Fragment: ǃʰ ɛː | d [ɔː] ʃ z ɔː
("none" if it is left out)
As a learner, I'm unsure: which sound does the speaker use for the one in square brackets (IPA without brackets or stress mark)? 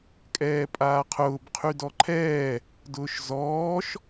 ʊː